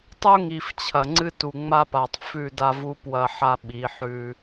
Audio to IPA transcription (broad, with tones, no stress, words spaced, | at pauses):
tˤu˦ŋi˨f t͡ɕʰɐ˨ŋ͡ǀɨ˦ tu˨ŋ͡ma˦pa˨tˤ fʉ˦˨da˦vu˦ pwɐ˦ħa˦ ɓi˨˦ħʉ˦